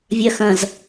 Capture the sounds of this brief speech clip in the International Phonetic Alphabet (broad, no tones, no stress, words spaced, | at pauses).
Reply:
vʲɐxɐ̃z